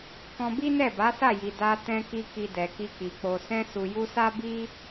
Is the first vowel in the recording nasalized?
yes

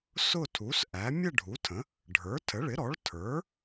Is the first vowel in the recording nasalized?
no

